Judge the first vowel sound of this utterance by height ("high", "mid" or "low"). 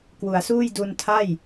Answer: high